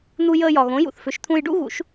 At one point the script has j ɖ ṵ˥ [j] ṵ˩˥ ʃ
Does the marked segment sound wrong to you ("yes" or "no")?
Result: yes